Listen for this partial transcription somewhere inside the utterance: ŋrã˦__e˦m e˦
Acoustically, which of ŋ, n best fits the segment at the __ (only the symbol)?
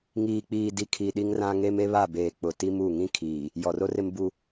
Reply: ŋ